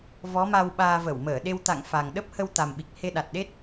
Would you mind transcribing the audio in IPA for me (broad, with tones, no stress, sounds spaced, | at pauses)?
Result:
v ɔ˨˦ m a˧ w ɓ aː˧ v ə˧˩ w m əː˧˩ ɗ e˧ w t̪ a̰˧˨ ŋ f a˨˩ ŋ ɗ ə˦˥ p̚ h ə˧ w t̪ a˨˩ m ɓ i˨˩ k̚ h e˧ ɗ a˨˩ t̚ ɗ e˦˥ t̚